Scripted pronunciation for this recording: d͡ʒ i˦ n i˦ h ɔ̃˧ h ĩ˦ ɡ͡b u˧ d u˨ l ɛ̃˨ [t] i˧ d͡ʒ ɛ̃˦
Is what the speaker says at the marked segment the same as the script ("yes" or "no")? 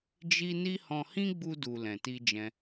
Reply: yes